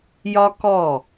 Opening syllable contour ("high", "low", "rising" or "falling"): high